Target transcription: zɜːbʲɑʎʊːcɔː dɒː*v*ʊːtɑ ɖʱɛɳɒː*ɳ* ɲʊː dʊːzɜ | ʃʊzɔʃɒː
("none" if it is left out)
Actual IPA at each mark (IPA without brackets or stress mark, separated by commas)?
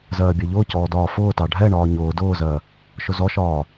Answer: f, none